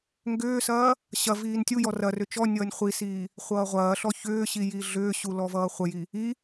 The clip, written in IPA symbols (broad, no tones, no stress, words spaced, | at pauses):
ŋɡʏːsɐː | ɕɐ viːntʲujɔ rɐ rʏt͡ʃɔnʲʌːnʲ χʷisiː | χʷʌːʁʷɐːɬɔ çʏːɕi jiɮʏːɕu lɔvʌːχʷɐji | i